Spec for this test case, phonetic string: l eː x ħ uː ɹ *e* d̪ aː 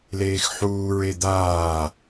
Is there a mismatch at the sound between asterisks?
no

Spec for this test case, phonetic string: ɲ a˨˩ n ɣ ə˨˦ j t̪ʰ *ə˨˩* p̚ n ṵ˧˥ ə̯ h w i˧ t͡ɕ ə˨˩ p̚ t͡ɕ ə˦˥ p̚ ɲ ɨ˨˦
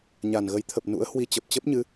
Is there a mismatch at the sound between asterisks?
no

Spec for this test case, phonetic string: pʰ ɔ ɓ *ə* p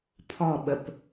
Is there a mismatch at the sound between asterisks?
no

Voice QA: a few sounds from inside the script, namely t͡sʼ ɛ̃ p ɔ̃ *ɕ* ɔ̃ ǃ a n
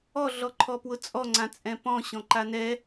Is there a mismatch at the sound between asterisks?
no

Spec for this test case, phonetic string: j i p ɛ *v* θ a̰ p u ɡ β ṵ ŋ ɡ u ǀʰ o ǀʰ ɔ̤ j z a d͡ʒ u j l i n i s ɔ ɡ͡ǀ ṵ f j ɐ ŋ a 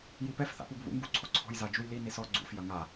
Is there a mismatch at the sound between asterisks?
yes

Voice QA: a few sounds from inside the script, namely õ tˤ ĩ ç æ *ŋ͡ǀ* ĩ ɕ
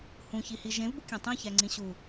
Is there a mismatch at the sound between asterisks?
no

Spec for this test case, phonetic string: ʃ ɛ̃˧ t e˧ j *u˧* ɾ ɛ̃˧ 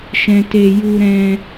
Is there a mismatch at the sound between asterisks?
no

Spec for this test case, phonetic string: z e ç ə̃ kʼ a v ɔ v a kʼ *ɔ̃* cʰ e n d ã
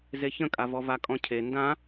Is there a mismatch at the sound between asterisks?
no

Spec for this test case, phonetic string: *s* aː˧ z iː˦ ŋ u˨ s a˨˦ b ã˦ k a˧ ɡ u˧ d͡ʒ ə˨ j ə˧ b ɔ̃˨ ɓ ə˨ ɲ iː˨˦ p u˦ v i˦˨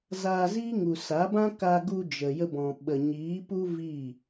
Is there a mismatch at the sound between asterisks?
yes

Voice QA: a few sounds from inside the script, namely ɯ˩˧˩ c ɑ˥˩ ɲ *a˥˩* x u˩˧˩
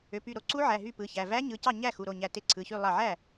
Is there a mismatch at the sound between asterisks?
yes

